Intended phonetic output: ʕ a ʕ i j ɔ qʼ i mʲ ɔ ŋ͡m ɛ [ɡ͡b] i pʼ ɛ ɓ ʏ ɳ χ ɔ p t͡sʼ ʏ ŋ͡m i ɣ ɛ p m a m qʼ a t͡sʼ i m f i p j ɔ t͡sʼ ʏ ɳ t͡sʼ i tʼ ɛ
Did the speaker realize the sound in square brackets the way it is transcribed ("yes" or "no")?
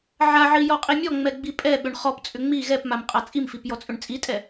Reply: yes